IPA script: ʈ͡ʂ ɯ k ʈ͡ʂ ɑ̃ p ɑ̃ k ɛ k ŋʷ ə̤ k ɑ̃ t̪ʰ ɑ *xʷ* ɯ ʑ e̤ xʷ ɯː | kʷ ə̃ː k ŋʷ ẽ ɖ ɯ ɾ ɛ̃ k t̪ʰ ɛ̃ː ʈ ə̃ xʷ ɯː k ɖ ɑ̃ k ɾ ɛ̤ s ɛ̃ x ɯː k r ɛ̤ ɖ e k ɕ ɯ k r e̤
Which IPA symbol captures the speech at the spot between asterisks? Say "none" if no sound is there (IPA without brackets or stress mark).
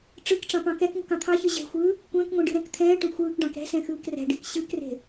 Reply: ç